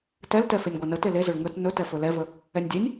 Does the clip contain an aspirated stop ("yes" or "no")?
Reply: no